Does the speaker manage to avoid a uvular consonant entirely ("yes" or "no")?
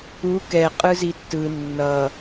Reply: no